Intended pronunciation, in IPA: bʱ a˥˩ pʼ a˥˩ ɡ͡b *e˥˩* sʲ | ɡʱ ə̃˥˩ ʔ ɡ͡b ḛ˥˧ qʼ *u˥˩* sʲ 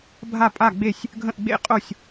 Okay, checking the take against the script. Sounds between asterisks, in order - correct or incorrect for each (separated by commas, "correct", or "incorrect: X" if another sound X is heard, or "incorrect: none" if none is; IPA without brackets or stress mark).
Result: correct, incorrect: o˥˩